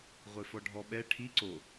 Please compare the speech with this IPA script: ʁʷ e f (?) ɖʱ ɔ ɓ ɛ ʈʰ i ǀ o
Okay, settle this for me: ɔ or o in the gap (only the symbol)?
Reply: ɔ